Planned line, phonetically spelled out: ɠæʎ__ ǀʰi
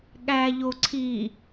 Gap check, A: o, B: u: A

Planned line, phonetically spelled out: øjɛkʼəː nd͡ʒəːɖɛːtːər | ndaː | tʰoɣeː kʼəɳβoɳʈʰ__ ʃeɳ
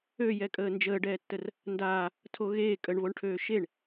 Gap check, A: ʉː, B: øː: B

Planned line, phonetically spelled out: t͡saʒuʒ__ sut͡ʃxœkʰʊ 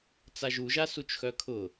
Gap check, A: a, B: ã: A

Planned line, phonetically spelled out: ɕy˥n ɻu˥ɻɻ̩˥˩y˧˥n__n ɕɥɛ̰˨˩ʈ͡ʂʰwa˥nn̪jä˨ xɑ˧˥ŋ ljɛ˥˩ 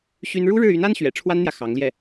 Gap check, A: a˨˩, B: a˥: B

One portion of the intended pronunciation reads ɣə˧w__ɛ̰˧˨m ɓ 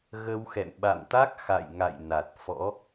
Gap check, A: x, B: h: A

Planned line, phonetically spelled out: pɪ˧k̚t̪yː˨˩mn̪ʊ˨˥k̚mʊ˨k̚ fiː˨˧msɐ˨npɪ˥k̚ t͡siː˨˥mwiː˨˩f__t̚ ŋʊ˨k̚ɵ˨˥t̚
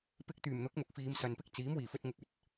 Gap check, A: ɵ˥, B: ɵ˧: B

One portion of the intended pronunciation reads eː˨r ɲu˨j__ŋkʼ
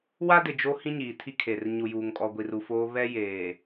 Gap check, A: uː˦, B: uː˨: B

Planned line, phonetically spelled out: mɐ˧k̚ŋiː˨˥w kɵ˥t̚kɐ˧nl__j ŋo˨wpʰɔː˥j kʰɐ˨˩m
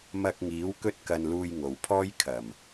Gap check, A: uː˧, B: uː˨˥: A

